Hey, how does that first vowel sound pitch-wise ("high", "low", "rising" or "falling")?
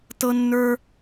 high